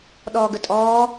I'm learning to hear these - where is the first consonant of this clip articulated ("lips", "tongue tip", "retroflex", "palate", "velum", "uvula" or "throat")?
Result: tongue tip